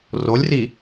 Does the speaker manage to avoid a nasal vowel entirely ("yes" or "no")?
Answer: yes